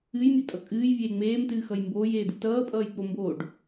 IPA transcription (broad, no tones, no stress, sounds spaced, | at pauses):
ɨ j mʲ ʌ tʼ ʌ kʼ ɨː j vʲ eː ŋ͡m eː m t ɨː x ʌ j m b oː j eː d̪ u t ʌː pʼ ʌː j k͡p o m b oː ɖ